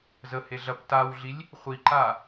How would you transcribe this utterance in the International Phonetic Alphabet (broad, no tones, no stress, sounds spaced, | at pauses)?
z ə h e ɮ ɐ p t a w ɮ i lʲ | χʷ i ǃ a